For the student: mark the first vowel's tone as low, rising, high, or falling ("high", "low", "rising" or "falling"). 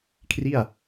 falling